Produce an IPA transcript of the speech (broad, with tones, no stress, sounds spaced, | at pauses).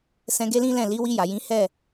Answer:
s ɛ̃˧ ɡ e˦ l ĩ˦ l ɛ̃˦˨ l i˨˦ w i˧ j a˨ j ĩ˨˦ h ɛ˦˨